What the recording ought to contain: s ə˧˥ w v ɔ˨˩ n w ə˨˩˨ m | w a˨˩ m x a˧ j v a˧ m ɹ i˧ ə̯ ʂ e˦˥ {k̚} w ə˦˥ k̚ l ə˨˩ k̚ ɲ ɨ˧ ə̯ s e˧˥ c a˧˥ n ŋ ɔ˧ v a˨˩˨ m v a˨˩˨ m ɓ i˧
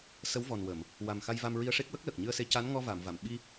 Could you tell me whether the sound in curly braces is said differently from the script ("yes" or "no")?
no